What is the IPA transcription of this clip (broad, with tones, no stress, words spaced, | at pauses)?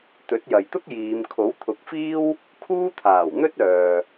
t̪ɵ˨˥t̚jɐ˨jt̪ʊ˥k̚ jiː˨˧m kʰo˨˥wt̪ʰʊ˨˥k̚fiː˥w | kʰuː˥t̪ʰaː˨˩wn̪ɵ˥t̚ œː˨